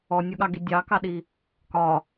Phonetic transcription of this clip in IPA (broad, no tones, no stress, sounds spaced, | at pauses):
ɔ nʲ o ɠ ɑ ɡ i dʲ ɑ k ɑ ɗ i | k ɒ